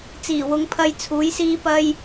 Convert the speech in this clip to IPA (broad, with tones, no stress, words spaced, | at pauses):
t͡siː˨˩ wʊ˨˧ŋpʰɐ˧j t͡sʰuː˨˥jsiː˥ pɐ˥j